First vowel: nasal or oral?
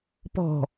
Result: oral